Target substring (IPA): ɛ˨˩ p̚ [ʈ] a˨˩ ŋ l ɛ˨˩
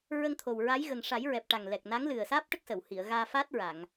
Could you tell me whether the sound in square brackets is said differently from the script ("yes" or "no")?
no